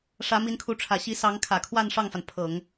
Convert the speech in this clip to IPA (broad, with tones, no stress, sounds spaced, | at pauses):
ʂ ä˧˥ m i˧˥ n kʰ u˧˥ ʈ͡ʂʰ ä˨˩ ɕ i˧˥ s ɑ˧˥ ŋ kʰ ä˨˩ kʰ w a˥˧ n ʂ ɑ˥˩ ŋ f a˩ n pʰ ɤ˨˩˦ ŋ